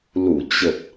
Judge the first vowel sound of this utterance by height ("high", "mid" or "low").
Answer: high